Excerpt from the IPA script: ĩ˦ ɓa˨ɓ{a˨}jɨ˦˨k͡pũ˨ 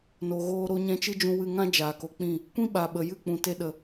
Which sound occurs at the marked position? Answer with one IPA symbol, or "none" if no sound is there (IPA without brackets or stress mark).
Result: ə˨